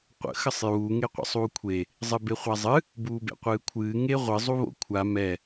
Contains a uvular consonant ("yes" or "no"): yes